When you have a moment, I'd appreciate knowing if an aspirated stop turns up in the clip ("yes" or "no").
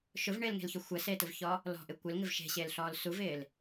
no